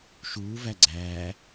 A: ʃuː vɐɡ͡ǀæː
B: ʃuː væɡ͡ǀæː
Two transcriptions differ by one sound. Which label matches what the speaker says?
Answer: B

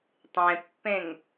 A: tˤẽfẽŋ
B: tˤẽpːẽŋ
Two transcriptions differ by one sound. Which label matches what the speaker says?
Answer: B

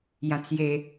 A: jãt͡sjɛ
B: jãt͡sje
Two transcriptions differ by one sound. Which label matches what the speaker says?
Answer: B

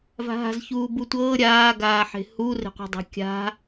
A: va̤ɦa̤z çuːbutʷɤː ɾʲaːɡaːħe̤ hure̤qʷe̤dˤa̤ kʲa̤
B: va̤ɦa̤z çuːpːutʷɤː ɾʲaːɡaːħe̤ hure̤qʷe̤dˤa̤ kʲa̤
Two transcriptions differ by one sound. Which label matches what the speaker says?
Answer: A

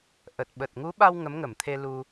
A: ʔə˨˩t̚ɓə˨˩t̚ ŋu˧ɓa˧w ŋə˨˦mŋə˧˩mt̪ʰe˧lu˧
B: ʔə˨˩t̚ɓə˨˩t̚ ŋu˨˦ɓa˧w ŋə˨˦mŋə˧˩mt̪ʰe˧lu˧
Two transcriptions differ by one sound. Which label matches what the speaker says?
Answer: B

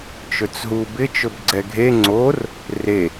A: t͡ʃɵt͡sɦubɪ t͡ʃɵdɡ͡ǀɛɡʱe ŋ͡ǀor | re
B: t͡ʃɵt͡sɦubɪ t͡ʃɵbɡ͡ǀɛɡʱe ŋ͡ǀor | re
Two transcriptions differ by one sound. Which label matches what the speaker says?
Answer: B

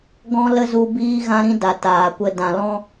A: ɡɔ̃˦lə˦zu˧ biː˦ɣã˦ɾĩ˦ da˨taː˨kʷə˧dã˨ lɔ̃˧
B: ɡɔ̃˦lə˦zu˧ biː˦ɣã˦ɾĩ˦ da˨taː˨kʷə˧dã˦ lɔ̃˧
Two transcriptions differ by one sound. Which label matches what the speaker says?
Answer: A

